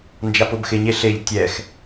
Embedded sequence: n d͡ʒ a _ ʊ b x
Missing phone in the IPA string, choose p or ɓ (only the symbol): p